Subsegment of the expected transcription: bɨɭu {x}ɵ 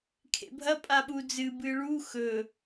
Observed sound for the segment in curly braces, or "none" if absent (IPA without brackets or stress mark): x